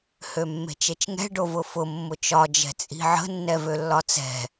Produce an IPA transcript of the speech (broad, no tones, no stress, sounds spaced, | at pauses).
h ø mː e̤ t͡ʃ e t͡ʃ ŋ ɛ̤ ɖ o v ʊ f ʊ mː ʊ t͡ʃ ɒ d͡ʒ ɛ̤ t͡sʼ i̤ ʕ ə̤ nː ɛ v ø lː ɒ t͡s ɛ̤